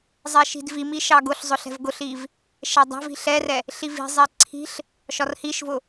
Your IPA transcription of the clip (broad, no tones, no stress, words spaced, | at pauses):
zˤɛʃi̤dvimi ʃɑɡʊɬzˤʊ ɬɛ̤vɡʊɬiv | ʃɛdˤa̤vi̤ ɬɛrɛ | ɬivi̤zˤɛ ǀʰi̤ɬ | ʃɒrhiʃvʊ